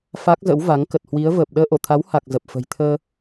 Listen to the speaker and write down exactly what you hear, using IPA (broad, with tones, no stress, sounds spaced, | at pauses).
f a˦˥ k̚ z ə̰˧˥ w v a˨˦ ŋ k ə˨˩ t̚ h w i˨˦ ə̯ v əː˨˩ p̚ ɗ əː˧ ʔ o˧˩ t̪ʰ a˨˦ w h a˨˩ k̚ z ə˨˩ p̚ f ə̤˨˩ j t̪ʰ əː˧